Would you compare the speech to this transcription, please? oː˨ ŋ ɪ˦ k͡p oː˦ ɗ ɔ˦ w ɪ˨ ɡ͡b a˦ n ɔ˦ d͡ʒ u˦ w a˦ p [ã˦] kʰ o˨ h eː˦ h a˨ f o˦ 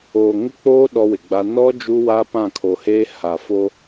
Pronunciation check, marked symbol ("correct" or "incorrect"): incorrect